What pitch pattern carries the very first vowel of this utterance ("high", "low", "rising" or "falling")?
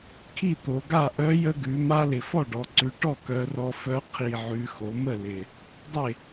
falling